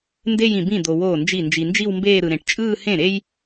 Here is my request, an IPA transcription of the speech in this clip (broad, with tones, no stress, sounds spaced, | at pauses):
n d e˥˧ j ĩ˨ b ĩ˥˩ d̪ o˨ w oː˥˩ n d͡ʒ i˥˩ n d͡ʒ i˨ n d͡ʒ i˥˧ w m b eː˥˧ ɾ ɯ˨ ɾ ẽ˨ ʈ t͡ʃʼ ɯː˥˧ h ẽ˥˩ ɾ e˥ j